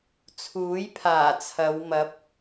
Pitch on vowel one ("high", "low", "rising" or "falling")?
rising